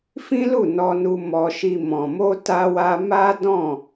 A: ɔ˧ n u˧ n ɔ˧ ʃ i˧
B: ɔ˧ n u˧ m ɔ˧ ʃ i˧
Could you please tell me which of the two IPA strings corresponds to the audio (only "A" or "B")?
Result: B